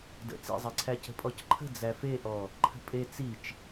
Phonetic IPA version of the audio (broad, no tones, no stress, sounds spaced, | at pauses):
d ə̰ t͡s ḭ zˤ ɛ ǀʰ æ c ə̤ pʼ ɔ c ǃʰ ə̤ d͡z æ f e ʔ ɔ | ǃʰ ə̤ pʼ e t͡s i t͡ʃ